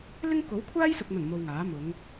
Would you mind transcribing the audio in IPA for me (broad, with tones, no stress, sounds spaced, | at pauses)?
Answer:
l ɪ˥ ŋ k o˨˥ w kʷʰ aː˥ j s ʊ˨ k̚ n̪ ɐ˨˩ n m o˧ w ŋ aː˨˥ m ʊ˨˧ ŋ